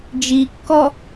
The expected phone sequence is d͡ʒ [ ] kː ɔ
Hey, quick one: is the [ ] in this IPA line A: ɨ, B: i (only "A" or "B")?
B